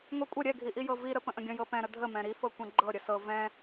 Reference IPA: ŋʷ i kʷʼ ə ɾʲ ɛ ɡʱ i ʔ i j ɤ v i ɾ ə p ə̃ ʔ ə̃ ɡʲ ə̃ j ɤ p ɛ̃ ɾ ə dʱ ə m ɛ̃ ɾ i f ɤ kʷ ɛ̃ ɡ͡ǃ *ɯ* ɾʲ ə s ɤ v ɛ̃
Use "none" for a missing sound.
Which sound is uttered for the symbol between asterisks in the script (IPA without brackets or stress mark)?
ɤ